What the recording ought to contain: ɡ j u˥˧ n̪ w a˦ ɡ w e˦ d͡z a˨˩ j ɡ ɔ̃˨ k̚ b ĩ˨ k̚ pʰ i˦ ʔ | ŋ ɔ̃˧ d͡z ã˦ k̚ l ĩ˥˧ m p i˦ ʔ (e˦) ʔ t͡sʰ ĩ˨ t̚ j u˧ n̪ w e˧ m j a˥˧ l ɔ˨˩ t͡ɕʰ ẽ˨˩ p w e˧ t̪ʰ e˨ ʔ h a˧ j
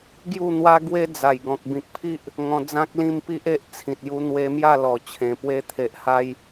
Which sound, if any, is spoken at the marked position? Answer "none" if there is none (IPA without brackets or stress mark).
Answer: e˦